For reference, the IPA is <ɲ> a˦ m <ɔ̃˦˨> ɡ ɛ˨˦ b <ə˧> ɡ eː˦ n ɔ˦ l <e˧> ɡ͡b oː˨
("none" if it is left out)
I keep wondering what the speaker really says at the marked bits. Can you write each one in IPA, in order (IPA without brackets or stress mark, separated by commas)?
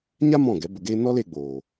ɲ, ɔ̃˦˨, ə˧, e˧